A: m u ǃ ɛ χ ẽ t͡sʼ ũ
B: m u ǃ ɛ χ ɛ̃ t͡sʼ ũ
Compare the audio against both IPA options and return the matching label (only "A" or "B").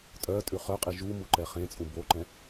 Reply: A